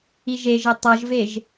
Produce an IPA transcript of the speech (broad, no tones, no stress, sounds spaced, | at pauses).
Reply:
i ʒ e ʒ ɪ tˤ ʌ ʒ v e ʒ